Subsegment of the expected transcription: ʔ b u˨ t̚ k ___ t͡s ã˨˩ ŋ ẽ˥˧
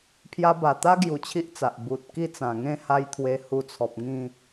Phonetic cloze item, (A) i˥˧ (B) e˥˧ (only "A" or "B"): A